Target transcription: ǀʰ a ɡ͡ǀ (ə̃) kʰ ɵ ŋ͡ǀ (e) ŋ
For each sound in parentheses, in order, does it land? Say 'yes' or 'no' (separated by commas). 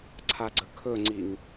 no, no